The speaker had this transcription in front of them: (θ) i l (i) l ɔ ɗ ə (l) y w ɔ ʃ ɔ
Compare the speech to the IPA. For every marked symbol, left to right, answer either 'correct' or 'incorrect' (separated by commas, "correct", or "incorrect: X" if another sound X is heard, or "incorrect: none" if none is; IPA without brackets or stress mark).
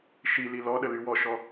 incorrect: ʃ, correct, correct